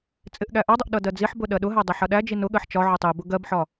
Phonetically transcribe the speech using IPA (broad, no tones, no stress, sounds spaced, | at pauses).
t͡sʼ ɪ ʔ ɠ æ ʔ ɒ dˤ ʊ ʔ ɗ ʌ d ɜ d͡z i ħ b ʊ ɗ ɜ ɗ ʊ ɦ æ dˤ æ ħ ʌ ɗ æ d͡ʒ i n ʊ ɠ ɜ ħ t͡ʃ ɒ ʕ ʊ tˤ i b ʊ ɡ ɜ b ħ ɒ